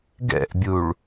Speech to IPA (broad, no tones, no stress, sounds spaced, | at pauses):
ɡ ɛ̰ ʔ bʲ u ɭ